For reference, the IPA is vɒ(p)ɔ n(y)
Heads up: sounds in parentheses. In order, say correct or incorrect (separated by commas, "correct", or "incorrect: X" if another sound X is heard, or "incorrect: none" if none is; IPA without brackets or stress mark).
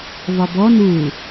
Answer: incorrect: b, incorrect: u